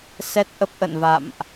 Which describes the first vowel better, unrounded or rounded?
unrounded